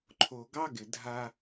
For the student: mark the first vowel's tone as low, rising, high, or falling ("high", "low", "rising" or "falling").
low